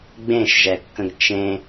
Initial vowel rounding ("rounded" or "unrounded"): unrounded